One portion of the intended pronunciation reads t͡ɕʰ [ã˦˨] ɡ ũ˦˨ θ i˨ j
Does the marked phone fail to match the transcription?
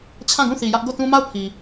no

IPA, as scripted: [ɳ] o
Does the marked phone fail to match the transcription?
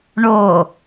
no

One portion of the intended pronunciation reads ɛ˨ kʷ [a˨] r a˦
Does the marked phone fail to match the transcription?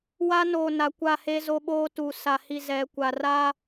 no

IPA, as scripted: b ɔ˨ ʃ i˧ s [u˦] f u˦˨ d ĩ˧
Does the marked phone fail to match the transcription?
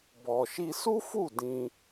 no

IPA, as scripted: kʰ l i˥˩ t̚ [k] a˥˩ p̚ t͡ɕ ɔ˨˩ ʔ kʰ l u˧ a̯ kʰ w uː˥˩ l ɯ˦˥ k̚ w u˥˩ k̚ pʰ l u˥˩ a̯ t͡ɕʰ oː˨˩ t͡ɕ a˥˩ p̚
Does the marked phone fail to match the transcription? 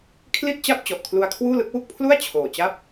yes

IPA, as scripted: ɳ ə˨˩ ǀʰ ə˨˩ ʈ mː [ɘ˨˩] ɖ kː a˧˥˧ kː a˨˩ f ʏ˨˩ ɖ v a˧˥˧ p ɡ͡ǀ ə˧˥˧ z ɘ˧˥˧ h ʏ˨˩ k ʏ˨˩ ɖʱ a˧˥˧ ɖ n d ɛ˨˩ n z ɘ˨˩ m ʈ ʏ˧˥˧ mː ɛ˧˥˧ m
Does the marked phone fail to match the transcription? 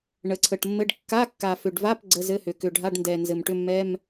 yes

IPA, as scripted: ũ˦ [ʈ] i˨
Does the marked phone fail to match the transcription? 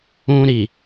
yes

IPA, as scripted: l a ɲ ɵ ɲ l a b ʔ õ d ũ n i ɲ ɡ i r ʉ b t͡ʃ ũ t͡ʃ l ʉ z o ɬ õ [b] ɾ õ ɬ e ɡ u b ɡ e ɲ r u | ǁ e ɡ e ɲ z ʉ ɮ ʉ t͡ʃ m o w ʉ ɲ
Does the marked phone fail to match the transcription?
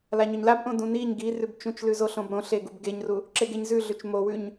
no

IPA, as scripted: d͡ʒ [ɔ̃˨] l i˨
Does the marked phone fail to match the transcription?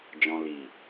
no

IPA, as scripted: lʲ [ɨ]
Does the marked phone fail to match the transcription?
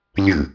no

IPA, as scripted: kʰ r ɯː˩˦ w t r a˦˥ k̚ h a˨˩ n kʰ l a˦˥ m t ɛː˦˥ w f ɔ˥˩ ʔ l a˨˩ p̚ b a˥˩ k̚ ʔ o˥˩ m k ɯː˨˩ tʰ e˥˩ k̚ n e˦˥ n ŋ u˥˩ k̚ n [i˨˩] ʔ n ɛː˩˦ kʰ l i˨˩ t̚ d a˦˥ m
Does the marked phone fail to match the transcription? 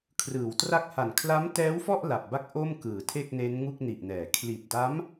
no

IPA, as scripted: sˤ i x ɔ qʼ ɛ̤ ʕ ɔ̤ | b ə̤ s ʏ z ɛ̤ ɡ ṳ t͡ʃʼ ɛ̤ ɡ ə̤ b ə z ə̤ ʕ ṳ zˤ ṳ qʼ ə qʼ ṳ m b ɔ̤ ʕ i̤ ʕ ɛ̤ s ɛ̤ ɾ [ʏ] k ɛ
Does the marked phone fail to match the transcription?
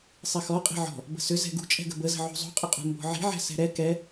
yes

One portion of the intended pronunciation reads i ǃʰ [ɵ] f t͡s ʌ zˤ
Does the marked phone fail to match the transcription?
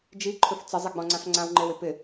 no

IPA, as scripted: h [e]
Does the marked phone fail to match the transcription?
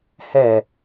yes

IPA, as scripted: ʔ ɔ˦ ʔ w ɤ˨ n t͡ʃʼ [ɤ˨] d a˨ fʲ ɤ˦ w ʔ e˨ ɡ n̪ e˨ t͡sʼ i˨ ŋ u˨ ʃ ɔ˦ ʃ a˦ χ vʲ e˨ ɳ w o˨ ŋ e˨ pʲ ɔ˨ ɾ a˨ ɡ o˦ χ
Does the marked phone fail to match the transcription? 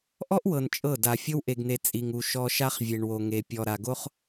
yes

